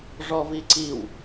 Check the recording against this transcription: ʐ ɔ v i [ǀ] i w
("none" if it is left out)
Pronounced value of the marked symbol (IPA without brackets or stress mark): ǀ